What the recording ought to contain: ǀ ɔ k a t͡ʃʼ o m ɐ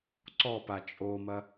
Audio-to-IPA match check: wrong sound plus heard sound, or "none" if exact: k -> p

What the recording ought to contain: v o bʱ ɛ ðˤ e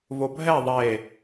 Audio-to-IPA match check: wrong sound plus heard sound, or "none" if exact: none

